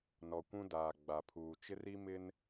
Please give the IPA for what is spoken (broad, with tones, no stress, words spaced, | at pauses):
nɔ˨kʷũ˦ daː˨ɡ͡ba˨pʰuː˨ t͡ʃɪ˦ri˦mɪ˦n